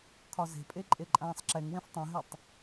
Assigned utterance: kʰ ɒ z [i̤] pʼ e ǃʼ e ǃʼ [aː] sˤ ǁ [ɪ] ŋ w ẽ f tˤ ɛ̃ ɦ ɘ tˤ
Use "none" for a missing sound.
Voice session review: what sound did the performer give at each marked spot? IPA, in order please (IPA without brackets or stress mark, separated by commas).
e̤, ãː, ɛ